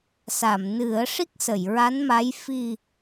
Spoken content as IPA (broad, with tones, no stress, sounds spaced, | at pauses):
s a˨˩˨ m n ɨ˨˩˦ ə̯ ʂ i˦˥ k̚ s ə˨˩˨ j ɹ a˧˥ n m a˧˥ j f i˨˩